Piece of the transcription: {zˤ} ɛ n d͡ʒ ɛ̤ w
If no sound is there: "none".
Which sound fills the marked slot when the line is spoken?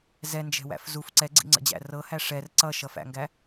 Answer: z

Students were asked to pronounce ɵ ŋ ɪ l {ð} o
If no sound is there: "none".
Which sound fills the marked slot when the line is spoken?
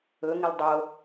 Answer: dˤ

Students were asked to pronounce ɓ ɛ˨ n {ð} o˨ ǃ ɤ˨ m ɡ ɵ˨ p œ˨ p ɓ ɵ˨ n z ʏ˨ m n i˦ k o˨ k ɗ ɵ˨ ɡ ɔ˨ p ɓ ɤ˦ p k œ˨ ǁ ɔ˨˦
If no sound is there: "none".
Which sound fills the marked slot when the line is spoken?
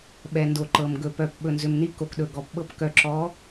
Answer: d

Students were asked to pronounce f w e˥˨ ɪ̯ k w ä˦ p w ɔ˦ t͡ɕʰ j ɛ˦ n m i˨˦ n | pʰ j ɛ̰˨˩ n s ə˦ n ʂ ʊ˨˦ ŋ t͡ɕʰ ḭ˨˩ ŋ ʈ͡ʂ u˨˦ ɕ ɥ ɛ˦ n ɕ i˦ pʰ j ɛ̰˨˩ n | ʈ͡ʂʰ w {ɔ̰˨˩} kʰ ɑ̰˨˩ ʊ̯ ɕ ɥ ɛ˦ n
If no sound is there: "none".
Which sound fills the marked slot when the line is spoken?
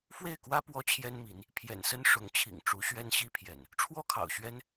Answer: ɔ˥˨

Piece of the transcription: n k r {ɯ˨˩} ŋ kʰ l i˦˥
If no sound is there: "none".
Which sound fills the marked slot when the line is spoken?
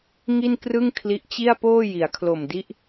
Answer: ɯ˥˩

